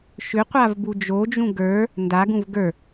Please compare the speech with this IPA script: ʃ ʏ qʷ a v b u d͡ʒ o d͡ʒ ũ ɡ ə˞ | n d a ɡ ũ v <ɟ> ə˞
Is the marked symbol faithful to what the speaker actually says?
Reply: no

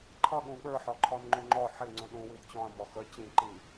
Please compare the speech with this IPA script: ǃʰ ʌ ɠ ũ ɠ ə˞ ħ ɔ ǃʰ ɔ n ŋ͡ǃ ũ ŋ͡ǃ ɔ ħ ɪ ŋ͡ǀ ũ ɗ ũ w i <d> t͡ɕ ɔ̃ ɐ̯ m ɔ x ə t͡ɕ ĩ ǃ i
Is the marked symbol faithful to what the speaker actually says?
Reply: yes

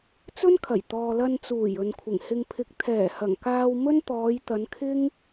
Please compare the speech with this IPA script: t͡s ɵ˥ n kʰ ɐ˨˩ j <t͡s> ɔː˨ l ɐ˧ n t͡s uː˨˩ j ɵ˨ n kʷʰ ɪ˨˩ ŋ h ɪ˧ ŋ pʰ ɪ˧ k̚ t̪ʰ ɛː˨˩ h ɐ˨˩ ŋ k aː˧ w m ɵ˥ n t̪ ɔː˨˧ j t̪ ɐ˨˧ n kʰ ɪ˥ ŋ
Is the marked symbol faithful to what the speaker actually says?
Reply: no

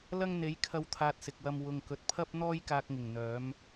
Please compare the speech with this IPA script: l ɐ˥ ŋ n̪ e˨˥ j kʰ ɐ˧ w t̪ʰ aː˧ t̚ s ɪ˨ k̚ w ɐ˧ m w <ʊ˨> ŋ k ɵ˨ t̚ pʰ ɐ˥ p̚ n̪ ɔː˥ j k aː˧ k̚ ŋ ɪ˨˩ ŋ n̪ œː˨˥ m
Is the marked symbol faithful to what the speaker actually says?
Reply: yes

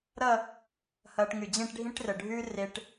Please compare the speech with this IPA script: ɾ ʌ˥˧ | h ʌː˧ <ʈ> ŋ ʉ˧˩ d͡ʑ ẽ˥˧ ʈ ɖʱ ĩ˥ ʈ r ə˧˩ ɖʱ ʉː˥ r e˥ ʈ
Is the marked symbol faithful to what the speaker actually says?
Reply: yes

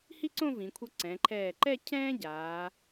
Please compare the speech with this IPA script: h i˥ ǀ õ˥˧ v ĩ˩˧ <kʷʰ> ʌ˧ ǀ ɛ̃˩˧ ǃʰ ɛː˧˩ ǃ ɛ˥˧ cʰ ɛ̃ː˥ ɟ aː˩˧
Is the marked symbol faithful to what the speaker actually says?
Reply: yes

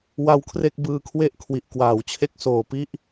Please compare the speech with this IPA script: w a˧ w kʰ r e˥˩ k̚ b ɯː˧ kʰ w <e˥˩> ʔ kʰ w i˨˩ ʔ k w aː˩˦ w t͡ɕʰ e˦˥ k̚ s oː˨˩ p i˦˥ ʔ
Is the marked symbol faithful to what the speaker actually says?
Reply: yes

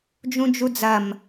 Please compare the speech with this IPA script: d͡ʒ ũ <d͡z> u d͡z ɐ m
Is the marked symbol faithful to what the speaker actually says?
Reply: no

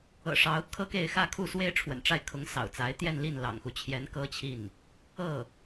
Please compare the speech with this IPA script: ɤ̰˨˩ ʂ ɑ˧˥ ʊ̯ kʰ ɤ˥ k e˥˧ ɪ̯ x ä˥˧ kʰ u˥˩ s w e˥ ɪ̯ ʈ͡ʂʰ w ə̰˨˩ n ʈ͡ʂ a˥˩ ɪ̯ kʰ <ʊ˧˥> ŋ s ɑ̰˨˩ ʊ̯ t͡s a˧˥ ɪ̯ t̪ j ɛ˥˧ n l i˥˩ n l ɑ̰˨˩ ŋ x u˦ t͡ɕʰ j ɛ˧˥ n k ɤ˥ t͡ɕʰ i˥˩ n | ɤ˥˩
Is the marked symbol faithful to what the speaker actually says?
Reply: yes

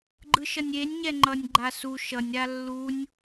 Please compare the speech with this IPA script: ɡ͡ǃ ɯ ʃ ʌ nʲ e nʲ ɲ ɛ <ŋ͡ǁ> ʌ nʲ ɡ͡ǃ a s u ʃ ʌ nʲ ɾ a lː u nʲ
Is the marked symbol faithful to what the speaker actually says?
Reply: no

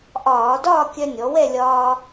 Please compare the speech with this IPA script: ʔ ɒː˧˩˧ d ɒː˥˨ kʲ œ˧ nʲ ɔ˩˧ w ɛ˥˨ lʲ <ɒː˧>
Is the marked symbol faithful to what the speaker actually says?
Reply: yes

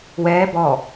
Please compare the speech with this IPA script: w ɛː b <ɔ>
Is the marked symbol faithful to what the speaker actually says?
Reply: yes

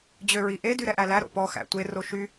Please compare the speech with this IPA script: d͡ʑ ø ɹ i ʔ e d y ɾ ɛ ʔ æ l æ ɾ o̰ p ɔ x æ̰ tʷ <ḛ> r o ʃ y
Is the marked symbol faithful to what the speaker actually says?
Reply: no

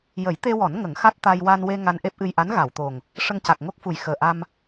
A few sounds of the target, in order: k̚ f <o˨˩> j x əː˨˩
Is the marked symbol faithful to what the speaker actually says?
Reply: no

